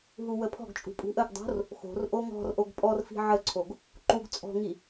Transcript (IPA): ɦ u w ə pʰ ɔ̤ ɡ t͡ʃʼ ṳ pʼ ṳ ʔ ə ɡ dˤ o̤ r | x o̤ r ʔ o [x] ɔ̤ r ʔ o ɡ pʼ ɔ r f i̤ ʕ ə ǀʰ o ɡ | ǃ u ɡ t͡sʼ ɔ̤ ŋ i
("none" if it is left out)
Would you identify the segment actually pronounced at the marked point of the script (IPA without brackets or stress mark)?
ŋ